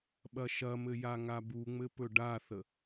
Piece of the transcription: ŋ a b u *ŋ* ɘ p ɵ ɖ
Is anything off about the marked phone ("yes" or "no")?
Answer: yes